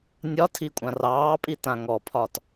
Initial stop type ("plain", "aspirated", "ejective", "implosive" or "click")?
aspirated